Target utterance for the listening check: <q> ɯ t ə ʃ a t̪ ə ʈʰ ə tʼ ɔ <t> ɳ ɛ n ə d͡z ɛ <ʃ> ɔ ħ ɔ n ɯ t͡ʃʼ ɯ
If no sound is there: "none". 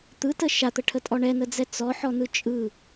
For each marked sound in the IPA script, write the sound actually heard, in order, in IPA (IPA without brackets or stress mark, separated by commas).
t̪, none, t͡s